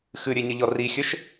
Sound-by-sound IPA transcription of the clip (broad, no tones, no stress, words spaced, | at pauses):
xɨɾʲeɲɘʎɔ rixʲɘʃ